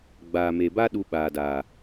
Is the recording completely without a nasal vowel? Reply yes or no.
yes